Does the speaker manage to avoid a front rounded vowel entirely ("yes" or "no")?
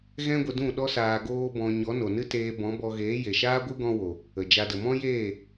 yes